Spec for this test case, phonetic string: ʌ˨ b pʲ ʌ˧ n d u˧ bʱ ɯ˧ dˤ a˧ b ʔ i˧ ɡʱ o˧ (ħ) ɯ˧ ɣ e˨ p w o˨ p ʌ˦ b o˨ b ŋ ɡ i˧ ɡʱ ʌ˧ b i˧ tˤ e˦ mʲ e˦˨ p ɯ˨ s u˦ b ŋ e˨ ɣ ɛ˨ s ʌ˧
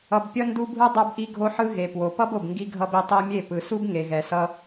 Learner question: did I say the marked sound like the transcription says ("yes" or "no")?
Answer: yes